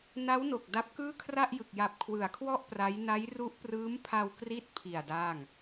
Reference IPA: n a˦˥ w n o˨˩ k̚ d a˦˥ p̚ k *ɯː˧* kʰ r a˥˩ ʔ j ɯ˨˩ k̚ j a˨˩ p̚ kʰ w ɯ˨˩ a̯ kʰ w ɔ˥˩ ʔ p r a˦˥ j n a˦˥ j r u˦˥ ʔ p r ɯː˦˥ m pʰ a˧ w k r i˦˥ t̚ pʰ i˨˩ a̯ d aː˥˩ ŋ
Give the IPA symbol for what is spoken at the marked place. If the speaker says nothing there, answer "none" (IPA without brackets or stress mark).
ɯː˥˩